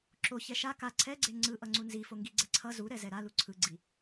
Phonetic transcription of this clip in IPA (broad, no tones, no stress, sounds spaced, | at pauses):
ǁ o ç ɛ ʃ a k a ǀʰ ɛ ɡ͡ǀ e ŋ͡ǀ ɯ ʔ ʌ ŋ͡ǀ u n z i f o ŋ ɡ i ɡ͡ǀ ɛ ǀʰ ʌ z u ɾ ɛ z ɛ ɾ a l u ǀʰ ɯ ɡ͡ǀ i